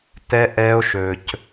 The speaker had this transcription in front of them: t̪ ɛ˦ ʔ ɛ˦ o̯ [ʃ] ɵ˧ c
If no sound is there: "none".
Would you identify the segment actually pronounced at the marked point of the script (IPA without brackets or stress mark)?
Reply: ʃ